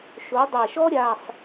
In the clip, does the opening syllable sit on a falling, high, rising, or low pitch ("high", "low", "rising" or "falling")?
rising